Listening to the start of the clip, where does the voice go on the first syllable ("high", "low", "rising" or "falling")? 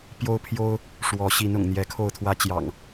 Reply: high